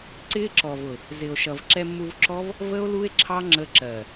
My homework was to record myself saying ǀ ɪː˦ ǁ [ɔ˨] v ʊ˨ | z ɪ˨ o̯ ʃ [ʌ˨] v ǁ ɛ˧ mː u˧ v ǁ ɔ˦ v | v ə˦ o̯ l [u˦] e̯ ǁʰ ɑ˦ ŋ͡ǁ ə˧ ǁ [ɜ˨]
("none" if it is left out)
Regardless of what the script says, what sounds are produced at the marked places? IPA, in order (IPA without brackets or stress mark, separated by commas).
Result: ɔ˨, ʌ˨, u˦, ɜ˨